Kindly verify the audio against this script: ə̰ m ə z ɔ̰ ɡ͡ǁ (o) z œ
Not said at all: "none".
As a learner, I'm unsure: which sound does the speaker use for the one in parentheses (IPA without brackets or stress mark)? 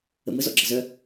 ɤ